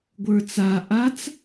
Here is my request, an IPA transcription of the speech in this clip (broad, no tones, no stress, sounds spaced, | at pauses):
ɡʷ ə˞ t͡s a ʔ a t͡s